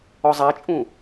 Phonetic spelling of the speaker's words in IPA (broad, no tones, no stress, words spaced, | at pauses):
ɔzˤat͡ʃʼũ